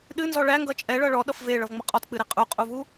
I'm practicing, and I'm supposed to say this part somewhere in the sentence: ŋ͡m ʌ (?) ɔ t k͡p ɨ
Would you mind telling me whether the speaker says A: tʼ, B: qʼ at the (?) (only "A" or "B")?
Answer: B